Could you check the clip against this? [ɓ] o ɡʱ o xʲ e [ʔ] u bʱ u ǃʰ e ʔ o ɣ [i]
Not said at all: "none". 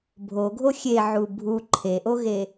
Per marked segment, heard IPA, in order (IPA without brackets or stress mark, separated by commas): bʱ, ʕ, e